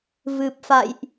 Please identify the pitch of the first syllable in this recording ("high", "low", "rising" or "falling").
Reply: low